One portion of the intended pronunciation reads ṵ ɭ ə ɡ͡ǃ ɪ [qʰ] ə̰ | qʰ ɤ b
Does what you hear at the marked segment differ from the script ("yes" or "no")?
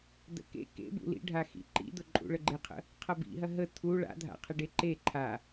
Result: no